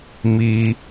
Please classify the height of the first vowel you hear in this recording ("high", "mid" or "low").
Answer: high